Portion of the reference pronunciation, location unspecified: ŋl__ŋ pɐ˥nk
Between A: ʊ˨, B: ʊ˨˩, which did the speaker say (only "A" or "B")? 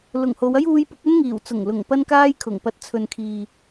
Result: B